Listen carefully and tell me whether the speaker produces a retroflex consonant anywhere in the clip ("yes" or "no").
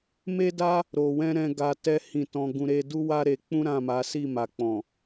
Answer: no